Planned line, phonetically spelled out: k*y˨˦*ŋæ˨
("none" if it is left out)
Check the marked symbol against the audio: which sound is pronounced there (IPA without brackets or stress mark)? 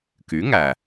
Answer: y˨˦